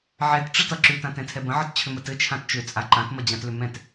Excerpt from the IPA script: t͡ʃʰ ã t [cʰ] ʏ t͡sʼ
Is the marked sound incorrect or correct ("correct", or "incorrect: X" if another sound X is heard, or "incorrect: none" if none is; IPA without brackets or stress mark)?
incorrect: t͡ʃ